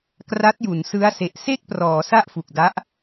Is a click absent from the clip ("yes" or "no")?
yes